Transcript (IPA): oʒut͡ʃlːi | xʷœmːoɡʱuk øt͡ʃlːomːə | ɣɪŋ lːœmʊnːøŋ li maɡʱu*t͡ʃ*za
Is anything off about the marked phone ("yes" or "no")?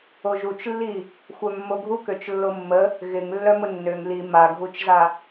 no